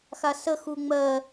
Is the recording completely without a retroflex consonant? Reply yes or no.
yes